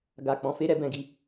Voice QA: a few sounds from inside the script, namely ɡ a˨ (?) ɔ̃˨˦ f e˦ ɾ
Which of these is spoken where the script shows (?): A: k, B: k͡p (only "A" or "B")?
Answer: B